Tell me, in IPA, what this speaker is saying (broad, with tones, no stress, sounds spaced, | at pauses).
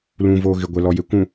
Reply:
l ũ˨ v oː˨ ɣ ɪ˨ ɡʷ ɛ˨ l ɔ˨ j e˨ kʷ ũ˨